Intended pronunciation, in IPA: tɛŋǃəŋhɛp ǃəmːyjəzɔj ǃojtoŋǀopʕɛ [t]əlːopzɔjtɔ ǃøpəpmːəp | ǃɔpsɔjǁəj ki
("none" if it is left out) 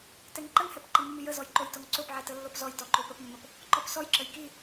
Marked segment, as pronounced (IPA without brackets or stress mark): t